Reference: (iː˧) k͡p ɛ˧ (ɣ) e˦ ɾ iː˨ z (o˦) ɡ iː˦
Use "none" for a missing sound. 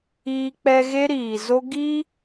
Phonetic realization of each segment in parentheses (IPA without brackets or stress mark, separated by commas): iː˧, ɣ, o˦